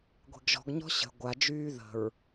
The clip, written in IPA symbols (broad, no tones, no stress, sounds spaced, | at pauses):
ɡʷ e̤ ɡ ʒ ɔ̤ ɡ ɲ ɔ̤ ɕ ə̤ ɡʷ a d͡ʒ yː ð ə̤ ɹ